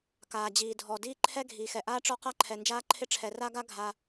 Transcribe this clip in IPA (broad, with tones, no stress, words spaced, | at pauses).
kaː˩d͡ʑiː˩dʱɔ˩ diː˥ǃʰɛ˥ ɡʱiː˩xɛ˩ʔaː˥ ʈ͡ʂɔ˥qa˥ǃʰɛ˩ nd͡ʒaː˥ǃʰɪ˥ʈ͡ʂʰɛ˩ ra˥ɡa˥ ɡʱa˩